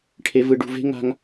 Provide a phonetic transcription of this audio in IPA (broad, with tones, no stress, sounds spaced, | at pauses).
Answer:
ʈʰ e˧ v ɯ˧ ɖ ṳ˧ v e̤˦ ŋ a̤˦ ŋ